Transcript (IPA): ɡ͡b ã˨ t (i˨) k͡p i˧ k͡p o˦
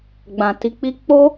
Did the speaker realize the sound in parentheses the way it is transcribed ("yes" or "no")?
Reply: no